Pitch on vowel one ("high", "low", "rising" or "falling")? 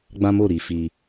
high